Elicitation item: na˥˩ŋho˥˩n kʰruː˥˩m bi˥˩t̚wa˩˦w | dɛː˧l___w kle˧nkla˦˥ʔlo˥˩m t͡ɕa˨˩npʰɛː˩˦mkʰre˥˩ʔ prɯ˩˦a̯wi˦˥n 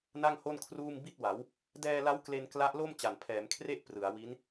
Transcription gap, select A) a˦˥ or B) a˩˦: A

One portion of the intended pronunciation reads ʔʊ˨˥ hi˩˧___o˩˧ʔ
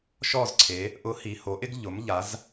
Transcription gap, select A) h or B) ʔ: A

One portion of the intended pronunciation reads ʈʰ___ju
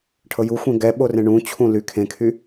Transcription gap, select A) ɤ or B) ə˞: A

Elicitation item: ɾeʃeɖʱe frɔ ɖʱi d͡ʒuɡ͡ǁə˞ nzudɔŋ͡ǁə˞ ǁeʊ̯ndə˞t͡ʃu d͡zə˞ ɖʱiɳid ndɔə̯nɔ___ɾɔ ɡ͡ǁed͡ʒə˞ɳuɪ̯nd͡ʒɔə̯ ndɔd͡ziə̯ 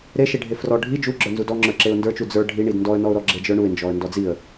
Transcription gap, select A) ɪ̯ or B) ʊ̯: B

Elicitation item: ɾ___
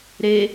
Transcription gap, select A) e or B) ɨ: A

